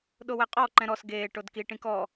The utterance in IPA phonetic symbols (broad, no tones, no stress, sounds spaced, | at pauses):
ɗ o w ɛ qʼ ɔ ǃ ɛ̃ ɾ ɔ s ɡ eː ʈ o d k i ʈ ĩ k ɔ